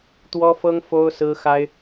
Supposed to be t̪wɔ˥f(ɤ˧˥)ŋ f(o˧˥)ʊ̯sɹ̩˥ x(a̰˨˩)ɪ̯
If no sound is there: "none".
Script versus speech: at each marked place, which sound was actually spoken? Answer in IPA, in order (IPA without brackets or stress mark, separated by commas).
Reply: ɤ˥, o˥, a˥